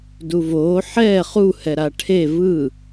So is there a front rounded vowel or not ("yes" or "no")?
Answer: no